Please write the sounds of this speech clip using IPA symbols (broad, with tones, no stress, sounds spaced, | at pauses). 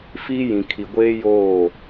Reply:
f iː˦ j ĩ˨ kʰ i˨ ɡʷ eː˦ j oː˦˨